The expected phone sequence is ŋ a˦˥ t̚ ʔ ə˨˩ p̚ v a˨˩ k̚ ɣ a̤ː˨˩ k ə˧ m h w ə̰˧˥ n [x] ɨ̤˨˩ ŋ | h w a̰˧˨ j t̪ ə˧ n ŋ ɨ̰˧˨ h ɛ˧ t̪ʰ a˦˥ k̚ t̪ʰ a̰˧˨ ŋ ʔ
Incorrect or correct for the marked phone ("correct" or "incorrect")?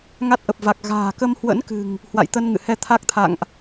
incorrect